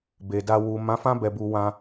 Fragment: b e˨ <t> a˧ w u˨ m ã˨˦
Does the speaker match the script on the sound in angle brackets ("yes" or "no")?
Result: no